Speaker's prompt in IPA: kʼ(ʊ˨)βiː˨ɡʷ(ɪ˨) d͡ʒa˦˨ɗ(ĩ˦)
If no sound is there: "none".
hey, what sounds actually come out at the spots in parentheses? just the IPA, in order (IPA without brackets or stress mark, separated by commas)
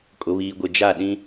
ʊ˨, ɪ˨, ĩ˦